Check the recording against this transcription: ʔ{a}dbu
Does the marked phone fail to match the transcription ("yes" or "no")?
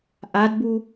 no